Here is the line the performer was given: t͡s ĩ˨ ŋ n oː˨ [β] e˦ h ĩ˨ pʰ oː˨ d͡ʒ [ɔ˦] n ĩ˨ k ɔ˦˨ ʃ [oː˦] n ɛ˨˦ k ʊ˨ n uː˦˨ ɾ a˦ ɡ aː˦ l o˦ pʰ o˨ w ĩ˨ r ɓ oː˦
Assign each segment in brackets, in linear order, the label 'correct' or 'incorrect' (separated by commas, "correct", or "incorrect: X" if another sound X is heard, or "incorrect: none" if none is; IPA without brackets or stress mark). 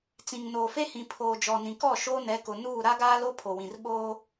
incorrect: f, incorrect: ɔ˨, correct